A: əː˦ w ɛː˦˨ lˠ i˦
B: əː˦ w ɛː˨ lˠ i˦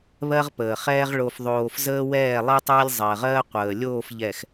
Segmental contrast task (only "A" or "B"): A